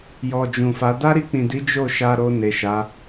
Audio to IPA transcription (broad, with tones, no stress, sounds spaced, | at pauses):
j ɔ˨ d͡ʒ ũ˨ f a˨˦ d a˦ ɾ i˧ k͡p ĩ˨ d i˨˦ d͡ʒ o˦˨ ʃ a˧ ɾ o˧ n e˨ ʃ a˨˦